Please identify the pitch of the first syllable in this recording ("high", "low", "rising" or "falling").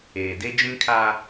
low